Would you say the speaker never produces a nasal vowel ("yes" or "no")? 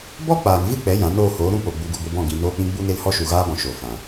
no